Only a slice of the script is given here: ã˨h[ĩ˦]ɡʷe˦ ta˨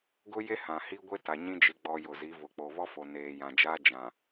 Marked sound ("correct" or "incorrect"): incorrect